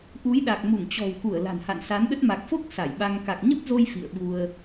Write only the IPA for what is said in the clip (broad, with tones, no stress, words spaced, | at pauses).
ʔu˨˦jɗa˨˩k̚mu˧˩ŋ t͡ɕɔ̤˨˩wku˧˩ə̯ la̤˨˩nha̰˧˨nsa˨˦nɗə˦˥t̚ ma˨˩k̚fo˦˥k̚ sa˧˩jɓa˧ŋ ka˨˩k̚ɲə˦˥p̚zo˧j fḭ˧˨ə̯ɓu˧ə̯